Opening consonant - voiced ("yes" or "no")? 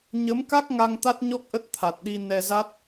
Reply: yes